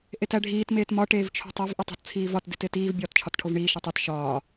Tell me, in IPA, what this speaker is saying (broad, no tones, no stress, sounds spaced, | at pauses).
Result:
ʔ e t æ ɖʱ iː t m eː t m ɒ ʈ eː v t͡ʃʰ o̤ tˤ o v ʔ i tˤ o̤ t t͡sʰ iː v ɒ t d i t e t iː v bʲ ɒː t t͡ʃʰ ɒ t ʈʰ o v ɳ iː ʃ e tˤ i t ʃ ɒː